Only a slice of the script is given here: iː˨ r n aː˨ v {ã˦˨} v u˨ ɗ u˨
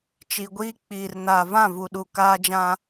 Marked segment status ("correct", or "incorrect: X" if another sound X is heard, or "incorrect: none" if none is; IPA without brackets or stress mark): correct